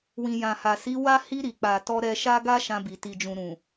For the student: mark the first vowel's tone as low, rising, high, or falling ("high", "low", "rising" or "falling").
low